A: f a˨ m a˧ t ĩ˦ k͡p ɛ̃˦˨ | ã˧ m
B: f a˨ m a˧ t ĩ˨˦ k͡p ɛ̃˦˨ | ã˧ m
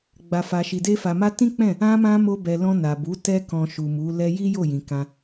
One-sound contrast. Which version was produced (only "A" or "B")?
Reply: A